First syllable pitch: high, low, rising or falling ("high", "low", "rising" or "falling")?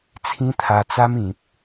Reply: high